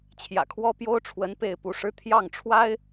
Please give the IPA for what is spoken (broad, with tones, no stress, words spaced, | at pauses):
t͡ɕʰjä̰˨˩kʰwɔ˥pjo˥ʊ̯ʈ͡ʂʰwə˧˥n pe˥˩ɪ̯pu˧˥ʂɻ̩˥ t̪ʰjɑ˥˩ŋʈ͡ʂʰwa˥ɪ̯